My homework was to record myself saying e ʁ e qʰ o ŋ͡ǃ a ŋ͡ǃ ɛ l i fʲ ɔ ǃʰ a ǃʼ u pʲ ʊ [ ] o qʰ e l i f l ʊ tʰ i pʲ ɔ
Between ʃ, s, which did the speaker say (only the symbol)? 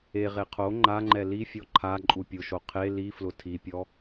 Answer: ʃ